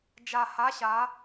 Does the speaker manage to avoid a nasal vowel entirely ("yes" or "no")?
yes